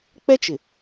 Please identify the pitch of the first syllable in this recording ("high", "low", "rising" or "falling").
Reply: high